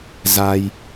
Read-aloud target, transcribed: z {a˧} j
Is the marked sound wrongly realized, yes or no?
no